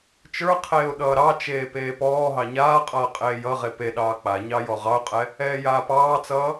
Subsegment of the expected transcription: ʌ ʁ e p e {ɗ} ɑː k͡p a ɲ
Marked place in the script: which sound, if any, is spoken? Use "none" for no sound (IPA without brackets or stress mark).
ɗ